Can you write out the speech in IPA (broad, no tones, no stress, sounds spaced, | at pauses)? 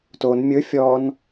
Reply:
t o n mʲ ɵ fʲ ɔ n